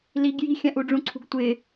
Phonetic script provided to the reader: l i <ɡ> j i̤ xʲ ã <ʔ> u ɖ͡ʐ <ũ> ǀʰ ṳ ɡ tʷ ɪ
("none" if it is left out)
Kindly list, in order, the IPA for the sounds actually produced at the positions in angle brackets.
ɡ, ʔ, ũ

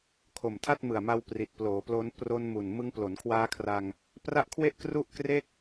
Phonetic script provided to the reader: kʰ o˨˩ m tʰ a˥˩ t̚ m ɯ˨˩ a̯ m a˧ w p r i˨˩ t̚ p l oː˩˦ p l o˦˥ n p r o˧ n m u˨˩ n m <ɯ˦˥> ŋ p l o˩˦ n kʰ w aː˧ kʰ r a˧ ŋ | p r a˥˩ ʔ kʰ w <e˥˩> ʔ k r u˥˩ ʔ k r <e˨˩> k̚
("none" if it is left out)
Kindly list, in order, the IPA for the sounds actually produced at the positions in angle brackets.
ɯ˦˥, e˥˩, e˥˩

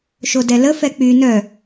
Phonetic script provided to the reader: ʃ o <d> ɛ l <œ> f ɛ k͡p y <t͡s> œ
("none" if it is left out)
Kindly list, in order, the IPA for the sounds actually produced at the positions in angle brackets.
d, ə, n

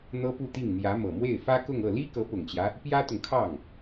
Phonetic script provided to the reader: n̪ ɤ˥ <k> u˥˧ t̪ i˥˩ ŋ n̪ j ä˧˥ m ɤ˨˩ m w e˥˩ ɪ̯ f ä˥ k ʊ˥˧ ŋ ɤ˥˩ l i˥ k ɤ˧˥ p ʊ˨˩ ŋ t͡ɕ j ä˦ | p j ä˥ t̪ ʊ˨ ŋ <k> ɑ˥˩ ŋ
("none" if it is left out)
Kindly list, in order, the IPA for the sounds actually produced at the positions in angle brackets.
p, kʰ

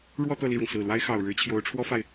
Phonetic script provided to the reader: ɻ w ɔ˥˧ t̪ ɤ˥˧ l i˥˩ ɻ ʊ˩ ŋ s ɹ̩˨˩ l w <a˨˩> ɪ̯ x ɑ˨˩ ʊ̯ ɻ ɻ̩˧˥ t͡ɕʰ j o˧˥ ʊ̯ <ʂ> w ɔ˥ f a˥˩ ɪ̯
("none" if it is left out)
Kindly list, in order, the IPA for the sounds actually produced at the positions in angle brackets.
a˥, ʈ͡ʂʰ

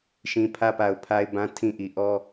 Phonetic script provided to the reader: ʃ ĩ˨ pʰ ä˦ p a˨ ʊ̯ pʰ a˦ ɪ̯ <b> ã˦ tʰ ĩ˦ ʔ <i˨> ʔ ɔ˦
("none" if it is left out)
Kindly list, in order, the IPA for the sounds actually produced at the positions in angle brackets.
b, i˨

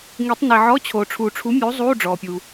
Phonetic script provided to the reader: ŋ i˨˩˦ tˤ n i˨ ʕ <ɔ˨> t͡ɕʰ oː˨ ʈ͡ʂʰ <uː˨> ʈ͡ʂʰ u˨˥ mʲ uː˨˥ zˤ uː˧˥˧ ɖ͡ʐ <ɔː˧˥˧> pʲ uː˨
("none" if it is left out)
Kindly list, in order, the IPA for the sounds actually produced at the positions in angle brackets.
ɔ˧˥˧, uː˨, ɔː˨

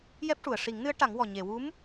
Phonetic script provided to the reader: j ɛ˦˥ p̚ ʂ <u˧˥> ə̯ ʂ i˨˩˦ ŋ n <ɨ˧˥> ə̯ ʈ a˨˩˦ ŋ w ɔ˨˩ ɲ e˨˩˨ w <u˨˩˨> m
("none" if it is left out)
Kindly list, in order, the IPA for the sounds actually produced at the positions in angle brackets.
u˨˩˨, ɨ˧˥, u˧˥

